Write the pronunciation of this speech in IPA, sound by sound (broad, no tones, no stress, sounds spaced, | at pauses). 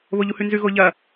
β o ʎ u h ʉ n z ʉ ɣ o ʎ ɐ